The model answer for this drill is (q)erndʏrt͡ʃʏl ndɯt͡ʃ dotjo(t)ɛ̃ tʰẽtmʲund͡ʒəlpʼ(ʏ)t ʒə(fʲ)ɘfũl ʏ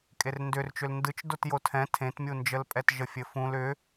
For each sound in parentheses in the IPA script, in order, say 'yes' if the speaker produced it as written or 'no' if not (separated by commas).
no, no, no, yes